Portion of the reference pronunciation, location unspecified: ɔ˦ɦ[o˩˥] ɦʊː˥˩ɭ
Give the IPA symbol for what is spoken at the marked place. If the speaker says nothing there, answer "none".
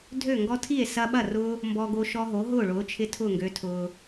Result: o˩˥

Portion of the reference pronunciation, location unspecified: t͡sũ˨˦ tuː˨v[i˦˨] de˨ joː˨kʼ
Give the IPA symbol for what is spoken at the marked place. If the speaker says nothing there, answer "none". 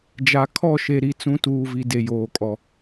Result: i˨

